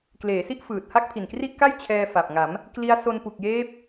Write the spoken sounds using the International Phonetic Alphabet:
k l eː˩˦ s i˦˥ ʔ f ɯː˨˩ t̚ h a˥˩ k̚ pʰ i˨˩ n k r i˥˩ ʔ k a˥˩ j t͡ɕʰ ɛː˧ f a˨˩ p̚ ŋ a˩˦ m | k l i˦˥ a̯ s o˧ n p u˨˩ k̚ j eː˦˥ p̚

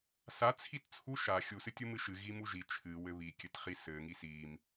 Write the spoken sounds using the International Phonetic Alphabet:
s a t͡sʰ i t t͡sʰ u ʃ a xʲ u s ɨ tʲ u m ɨ ʃ ɨ ɣ i m u ʒ i t͡ʃʰ ɨ w ɘ β i kʲ ɘ t χ i s ɘ ŋ i s i m

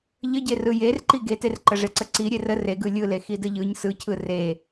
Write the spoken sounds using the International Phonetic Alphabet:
ʎ ə ɟ e r ɯ j e r ǃ i ɡ e t e r ǃ ə ʐ e ǀ ə ǀ i ɾʲ e r ə r e ɡ ɯ lʲ ɯ l e x i d ə ʎ ɯ ɲ s ɯ cʰ ɯ r e

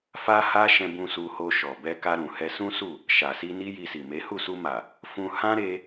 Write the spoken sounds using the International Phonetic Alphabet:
f a˦ h a˦ ʃ ɛ̃˧ b ũ˧ s u˧ h o˧ ʃ ɔ˨ b ɛ˧ k a˧ ɾ ũ˨ h ɛ˧ s ũ˦ s u˦˨ | ʃ a˨ s i˧ n i˦ j i˧ s i˨ m e˨˦ h u˦˨ s u˧ m a˨ | f ũ˧ h ã˦ ɾ e˧

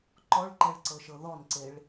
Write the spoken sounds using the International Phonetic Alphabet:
ǃ ɔ ɭ ǃ ɛ ɭ ǀ ɤ ʃ ɤ ð ɔ n ǀ e ɭ

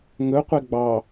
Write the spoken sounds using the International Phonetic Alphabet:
ŋ ɵ qʷ e ɡ͡b ɑ

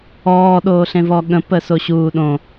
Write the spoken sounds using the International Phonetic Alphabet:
ɔː ɗ oː ɬ ẽ v ɔ ɠ ə̃ p ə s o ɕ uː ɗ õ

